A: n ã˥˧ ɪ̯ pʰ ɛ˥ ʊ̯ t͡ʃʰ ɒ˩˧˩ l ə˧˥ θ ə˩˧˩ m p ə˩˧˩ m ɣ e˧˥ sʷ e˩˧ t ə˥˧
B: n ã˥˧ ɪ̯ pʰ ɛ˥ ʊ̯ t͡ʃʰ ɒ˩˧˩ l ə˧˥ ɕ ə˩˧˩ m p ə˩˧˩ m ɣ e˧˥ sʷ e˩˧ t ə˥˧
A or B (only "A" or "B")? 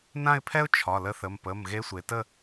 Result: A